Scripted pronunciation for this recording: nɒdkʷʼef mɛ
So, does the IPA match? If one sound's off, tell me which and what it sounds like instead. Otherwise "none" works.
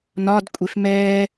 none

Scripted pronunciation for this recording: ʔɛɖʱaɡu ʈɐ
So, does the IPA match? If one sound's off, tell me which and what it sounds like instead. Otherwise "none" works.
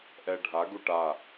ɐ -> a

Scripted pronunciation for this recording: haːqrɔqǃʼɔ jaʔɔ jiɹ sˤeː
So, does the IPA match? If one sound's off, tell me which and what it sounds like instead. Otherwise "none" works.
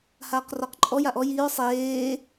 none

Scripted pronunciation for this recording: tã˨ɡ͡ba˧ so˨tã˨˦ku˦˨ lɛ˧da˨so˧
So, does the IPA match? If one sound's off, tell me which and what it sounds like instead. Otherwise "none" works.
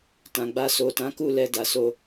none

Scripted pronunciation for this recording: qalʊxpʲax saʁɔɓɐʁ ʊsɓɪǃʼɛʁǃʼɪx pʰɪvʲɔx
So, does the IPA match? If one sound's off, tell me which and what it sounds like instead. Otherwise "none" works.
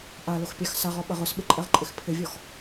q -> ʔ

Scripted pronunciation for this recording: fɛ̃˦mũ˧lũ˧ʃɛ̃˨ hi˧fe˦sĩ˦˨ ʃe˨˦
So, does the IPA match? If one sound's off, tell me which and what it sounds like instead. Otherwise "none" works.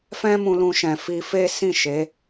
h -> f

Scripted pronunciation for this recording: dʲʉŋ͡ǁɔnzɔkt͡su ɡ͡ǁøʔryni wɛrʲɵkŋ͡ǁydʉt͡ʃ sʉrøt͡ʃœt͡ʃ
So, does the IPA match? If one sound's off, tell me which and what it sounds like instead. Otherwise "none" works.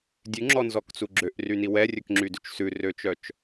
none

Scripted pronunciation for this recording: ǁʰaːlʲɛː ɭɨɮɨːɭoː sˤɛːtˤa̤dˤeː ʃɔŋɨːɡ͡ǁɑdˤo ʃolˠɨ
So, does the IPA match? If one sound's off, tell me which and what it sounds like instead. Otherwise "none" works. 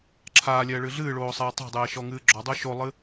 ɑ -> ɔ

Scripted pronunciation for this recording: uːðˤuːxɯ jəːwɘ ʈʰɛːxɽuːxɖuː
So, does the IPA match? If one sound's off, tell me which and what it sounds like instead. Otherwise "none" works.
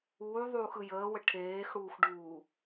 ɛː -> eː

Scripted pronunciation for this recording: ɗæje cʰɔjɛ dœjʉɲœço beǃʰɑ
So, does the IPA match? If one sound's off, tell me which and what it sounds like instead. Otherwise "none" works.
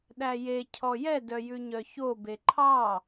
none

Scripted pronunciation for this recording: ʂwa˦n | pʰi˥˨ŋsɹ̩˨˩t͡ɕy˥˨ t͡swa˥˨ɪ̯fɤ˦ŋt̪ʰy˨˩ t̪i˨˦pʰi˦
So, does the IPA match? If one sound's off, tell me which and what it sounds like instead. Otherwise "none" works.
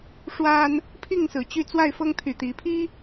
none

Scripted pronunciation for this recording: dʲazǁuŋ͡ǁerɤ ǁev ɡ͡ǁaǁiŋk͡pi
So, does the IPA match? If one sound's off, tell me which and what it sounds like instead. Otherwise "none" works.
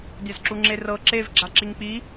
none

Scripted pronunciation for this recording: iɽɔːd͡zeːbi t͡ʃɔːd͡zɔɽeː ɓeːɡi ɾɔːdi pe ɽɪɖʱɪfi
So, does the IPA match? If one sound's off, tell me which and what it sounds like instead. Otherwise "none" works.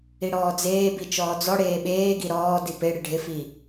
none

